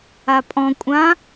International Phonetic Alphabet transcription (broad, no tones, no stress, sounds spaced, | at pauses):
a pʼ ɔ̃ kʷʼ ã